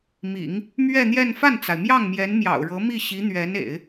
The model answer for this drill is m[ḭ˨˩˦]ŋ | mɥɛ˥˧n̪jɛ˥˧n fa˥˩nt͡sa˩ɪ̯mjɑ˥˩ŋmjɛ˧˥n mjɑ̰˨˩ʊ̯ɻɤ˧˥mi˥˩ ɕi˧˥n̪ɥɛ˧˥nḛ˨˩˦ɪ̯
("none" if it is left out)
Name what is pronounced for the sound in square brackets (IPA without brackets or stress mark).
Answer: ḭ˨˩˦